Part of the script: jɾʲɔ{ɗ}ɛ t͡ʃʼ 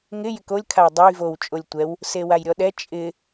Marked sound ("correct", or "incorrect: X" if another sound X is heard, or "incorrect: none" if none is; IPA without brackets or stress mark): correct